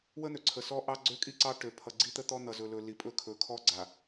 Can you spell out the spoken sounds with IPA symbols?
wə˦n̪ø˨ ǀʰə˨sɔ˦ ʔɑ˦ɡ͡ǀø˦kʼi˦ǀɑ˦ ʈø˨ pʰʌ˨ɡ͡ǀi˦t̪ə˦ t̪ɔ˦n̪ʌ˨zɵ˨lɵ˨ li˨pʼɵ˦kʰɵ˨ kʰɔ˦ɡ͡ǀa˨

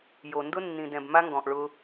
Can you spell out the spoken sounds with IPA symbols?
jo˨ ndʊ˦nːĩ˨dɛ̃˨b ma˦ŋɡɔ̃˨ʔ ɭʊ˦

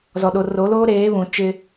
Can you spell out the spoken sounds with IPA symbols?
zɔ˨ɗo˨ro˨˦loː˦ ɾeː˨˦ βũ˨t͡ʃɪ˦

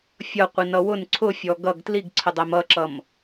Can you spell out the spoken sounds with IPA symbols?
fʲʌqʷinʌ wʊn ǀʰʊfʲɔ ɡʌɡ tliɡǀʰədˤæm ʌǁʌm

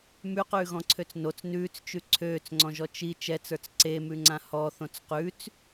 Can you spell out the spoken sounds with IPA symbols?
mʉqʉːɣɔ̃ǀʰøt͡s not͡s nʉːt͡st͡ʃʉ ǀʰøːt͡sŋ͡ǀɔ̃ʒɔ t͡ʃi t͡ʃɛt͡sə˞t͡s ǀemʉŋ͡ǀã hɔθõt͡s qʉt͡s

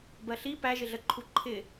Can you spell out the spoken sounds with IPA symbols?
bɜɬi pæʒɪɮə ǃʰuǃʰɪ

